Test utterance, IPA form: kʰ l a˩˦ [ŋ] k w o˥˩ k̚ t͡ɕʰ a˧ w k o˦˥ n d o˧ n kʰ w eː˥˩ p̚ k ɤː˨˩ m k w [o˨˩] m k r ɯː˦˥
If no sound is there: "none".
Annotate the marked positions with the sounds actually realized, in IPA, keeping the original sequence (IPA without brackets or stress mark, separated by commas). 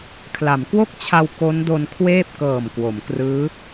m, o˩˦